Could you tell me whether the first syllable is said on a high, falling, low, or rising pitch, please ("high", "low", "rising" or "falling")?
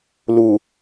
low